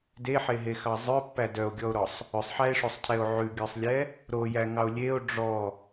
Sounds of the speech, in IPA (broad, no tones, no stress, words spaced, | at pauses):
deħeɦexɑ zˤœpːæ dœo̯ɡʲɔo̯ɾɔsˤ | ɵsˤħæe̯ʂosˤcʰɛo̯ ʕʉɡʲœsˤlʲɛ | ɾojæŋɑo̯ lʲeo̯ ɖ͡ʐɔ